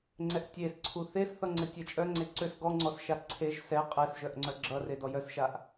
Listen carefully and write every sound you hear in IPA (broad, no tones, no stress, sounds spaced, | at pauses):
ŋ͡ǀ ɛ ʔ tʲ e s ǀʰ u θ e s θ ʌ ŋ͡ǀ ɘ tʲ ɛ t͡ʃʼ œ ŋ͡ǀ e ǀ ø s ɡ ɔ ŋ͡ǀ ɔ s ʃ a ǀʰ e ʒ s ɛ qʼ ɛ s ʒ œ ʔ ŋ͡ǀ œ ɡ͡ǁ ʌ r e d ɔ j œ s ʃ a ʔ